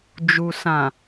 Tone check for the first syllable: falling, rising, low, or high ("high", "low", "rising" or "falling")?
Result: low